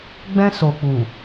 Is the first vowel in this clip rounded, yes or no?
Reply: no